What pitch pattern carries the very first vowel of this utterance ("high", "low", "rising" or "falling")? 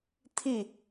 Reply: falling